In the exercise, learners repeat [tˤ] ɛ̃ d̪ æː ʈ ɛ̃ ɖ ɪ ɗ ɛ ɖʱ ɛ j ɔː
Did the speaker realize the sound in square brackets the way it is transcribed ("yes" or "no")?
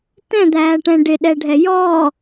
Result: no